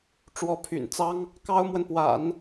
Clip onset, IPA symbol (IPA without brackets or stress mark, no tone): ʈ͡ʂ